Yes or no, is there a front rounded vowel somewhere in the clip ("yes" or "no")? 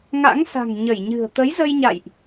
no